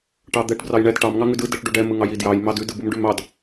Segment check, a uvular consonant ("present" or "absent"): absent